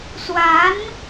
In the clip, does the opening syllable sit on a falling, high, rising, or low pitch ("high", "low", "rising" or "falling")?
rising